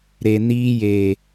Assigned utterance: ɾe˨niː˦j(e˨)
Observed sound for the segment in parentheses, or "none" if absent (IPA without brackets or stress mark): e˨